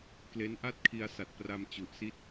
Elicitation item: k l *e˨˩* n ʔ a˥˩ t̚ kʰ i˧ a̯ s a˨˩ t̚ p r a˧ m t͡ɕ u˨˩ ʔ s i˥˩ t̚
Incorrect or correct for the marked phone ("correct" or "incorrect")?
incorrect